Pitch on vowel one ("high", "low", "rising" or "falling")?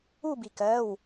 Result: falling